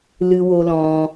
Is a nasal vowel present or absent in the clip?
present